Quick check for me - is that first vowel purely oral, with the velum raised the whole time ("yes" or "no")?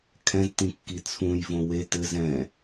no